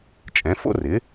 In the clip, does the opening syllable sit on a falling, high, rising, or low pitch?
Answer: rising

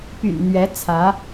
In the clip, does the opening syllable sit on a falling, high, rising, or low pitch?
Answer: low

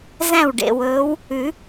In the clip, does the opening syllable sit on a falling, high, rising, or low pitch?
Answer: falling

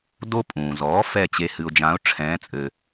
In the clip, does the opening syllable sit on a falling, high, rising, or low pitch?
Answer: high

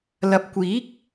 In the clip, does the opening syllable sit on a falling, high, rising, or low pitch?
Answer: rising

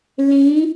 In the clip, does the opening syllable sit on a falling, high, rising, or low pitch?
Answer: rising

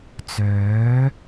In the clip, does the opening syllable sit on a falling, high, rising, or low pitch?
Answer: rising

